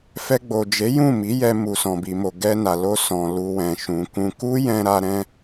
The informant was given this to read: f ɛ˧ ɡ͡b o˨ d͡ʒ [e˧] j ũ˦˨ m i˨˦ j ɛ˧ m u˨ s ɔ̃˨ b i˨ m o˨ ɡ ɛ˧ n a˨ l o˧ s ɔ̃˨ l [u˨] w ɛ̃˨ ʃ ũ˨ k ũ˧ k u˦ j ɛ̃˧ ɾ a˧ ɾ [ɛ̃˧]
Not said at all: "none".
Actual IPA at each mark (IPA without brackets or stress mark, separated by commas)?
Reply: e˨˦, u˨, ɛ̃˦